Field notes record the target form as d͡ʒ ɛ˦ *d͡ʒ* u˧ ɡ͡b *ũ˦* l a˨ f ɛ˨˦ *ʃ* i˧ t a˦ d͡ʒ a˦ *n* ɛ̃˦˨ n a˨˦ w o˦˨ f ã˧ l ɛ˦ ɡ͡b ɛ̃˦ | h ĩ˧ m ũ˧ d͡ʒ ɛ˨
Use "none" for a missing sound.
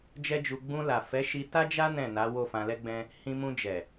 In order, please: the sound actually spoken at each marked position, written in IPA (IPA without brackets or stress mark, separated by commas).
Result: d͡ʒ, ũ˧, ʃ, n